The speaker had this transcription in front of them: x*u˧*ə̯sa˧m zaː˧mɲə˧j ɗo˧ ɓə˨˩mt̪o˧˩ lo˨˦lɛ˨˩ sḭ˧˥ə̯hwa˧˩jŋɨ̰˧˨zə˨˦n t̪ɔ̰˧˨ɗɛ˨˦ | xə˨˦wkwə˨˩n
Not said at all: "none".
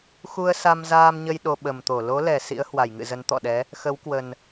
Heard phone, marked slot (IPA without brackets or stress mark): u˧